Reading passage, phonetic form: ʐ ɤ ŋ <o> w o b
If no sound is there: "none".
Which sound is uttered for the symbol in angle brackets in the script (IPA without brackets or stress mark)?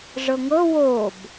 ɤ